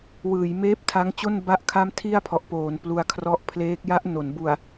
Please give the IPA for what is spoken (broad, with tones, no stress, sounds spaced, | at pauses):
w ɯː˩˦ j m eː˦˥ p̚ tʰ a˦˥ ŋ t͡ɕ o˥˩ n b a˥˩ ʔ kʰ a˥˩ m tʰ i˥˩ a̯ pʰ ɔ˨˩ ʔ p oː˩˦ n p l u˧ a̯ kʰ r ɔ˦˥ ʔ pʰ l eː˦˥ k̚ j a˦˥ ʔ n o˩˦ n b u˨˩ a̯